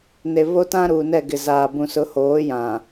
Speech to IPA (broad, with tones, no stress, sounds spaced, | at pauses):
n e˨ β o˦ t ã˦ ɾ uː˨ n ɛ˦˨ ɡ ɪ˨ z aː˨ b ũ˨ s ʊ˨˦ h oː˨˦ j ã˨